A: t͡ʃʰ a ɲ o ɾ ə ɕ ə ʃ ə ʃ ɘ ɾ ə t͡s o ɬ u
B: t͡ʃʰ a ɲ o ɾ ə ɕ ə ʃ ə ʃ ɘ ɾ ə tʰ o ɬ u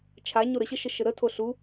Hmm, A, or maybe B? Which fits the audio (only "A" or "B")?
B